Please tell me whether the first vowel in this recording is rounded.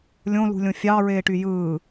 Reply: yes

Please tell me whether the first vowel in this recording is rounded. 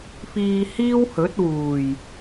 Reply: no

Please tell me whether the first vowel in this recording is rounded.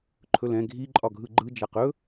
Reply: yes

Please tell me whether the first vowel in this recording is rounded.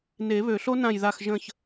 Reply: no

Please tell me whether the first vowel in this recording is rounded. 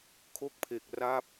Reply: yes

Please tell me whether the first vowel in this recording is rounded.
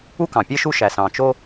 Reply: yes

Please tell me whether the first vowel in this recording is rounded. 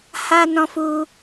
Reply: no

